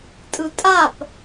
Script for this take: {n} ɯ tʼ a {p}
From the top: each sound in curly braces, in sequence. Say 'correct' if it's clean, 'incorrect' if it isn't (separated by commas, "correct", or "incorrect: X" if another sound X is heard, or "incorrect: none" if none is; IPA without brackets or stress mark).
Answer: incorrect: tʼ, correct